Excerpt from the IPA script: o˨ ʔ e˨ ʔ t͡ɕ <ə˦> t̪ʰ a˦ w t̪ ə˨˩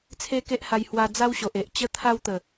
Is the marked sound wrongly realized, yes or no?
no